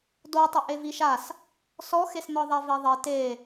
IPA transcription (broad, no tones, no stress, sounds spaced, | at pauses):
d o tˤ i ʔ e v i ʃ a s | s ɔ x e s n̪ ɔ ðˤ ɛ v e ðˤ e t e